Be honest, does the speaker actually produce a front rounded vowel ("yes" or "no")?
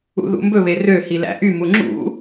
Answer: yes